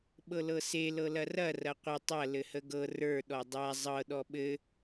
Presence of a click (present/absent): absent